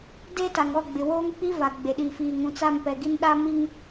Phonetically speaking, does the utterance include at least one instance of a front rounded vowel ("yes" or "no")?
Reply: no